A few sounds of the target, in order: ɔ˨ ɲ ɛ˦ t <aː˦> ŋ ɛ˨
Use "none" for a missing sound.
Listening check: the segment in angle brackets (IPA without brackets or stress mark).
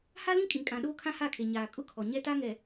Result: a˦